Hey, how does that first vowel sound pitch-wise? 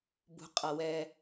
rising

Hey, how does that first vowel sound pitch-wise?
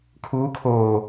rising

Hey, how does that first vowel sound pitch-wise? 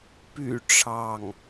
low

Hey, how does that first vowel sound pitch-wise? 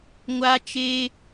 high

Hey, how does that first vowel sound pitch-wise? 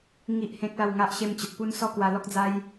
high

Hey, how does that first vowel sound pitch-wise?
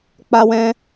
high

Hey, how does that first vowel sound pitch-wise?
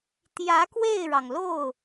rising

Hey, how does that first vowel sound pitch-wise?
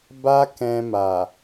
high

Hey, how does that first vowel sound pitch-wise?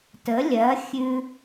rising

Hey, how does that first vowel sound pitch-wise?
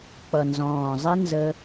low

